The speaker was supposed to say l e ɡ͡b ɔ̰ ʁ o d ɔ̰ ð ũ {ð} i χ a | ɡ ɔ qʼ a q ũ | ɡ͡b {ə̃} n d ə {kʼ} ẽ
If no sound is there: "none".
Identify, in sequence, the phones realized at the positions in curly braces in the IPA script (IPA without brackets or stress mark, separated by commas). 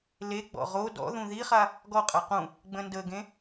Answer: ð, ə̃, ɡ